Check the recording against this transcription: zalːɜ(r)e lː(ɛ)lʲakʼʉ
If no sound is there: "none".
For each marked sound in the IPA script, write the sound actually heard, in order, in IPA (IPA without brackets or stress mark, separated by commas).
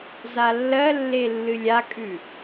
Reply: lː, ɨ